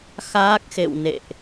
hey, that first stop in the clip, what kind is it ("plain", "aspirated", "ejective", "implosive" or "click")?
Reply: plain